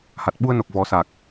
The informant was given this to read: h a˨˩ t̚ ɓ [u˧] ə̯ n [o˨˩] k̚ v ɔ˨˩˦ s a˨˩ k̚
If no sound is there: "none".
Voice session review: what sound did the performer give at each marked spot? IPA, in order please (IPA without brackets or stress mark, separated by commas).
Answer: u˧, o˨˩